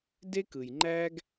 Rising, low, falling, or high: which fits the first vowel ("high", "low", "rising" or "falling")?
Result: high